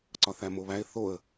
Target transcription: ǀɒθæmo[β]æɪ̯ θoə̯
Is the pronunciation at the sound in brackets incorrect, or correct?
correct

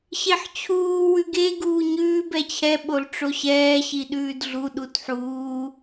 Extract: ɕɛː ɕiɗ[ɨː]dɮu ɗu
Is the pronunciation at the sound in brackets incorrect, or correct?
incorrect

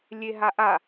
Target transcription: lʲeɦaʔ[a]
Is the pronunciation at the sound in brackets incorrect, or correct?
correct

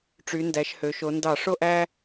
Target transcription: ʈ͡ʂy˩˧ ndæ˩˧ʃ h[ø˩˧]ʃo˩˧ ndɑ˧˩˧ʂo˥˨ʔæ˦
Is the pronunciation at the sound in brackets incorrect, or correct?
correct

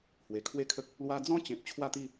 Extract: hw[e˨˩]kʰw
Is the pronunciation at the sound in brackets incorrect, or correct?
correct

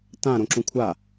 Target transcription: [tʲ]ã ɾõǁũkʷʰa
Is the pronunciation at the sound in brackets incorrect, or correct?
incorrect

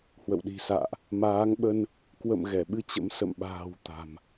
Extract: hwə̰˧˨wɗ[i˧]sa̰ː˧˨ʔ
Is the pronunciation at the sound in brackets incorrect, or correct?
incorrect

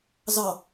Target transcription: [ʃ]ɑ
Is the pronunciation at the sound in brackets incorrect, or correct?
incorrect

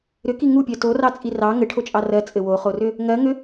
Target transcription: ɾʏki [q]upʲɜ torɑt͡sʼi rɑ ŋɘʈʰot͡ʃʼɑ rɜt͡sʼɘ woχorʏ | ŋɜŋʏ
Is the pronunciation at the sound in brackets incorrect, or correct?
incorrect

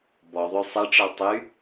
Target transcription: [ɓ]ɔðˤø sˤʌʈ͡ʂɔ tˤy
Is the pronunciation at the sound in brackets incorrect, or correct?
incorrect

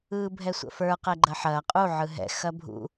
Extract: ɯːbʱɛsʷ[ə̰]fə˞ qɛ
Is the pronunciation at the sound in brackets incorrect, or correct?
correct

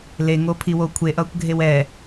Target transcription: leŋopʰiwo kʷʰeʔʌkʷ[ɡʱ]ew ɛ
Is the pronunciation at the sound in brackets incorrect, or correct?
correct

